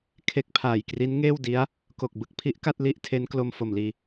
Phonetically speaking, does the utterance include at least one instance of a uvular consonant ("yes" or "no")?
no